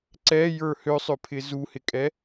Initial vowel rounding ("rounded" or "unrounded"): unrounded